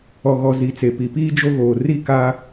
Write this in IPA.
ɔ˨ɣɔ˨ zi˨t͡se˨ pi˨piː˦ d͡ʒo˦ɣoː˨ ri˦˨ ka˦

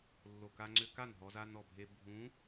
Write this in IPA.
lːo˨˩ ka˧ŋ͡ǀʏ˧ka˥˩n ɦɔ˧za˧nɔ˨˩ bʱe˧ bʱũ˧˥

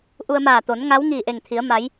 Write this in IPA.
ʔu˧ə̯maː˧˩ t̪o˩˧n ŋa˧˥wŋiː˧˩ ʔe˧˩ŋt̪ʰi˩˧ə̯ ma˩˧j

